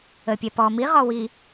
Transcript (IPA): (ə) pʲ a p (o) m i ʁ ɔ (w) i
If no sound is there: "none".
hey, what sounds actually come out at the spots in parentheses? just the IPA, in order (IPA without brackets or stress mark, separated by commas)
ə, ɔ, w